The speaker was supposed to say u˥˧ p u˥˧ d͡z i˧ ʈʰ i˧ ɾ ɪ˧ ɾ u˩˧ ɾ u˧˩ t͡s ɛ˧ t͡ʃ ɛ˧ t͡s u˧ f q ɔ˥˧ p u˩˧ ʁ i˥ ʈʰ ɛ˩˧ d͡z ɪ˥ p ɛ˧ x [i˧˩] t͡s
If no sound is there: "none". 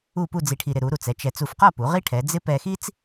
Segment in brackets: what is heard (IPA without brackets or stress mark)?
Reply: i˥